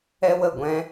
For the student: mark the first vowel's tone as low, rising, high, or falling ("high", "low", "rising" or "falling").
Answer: high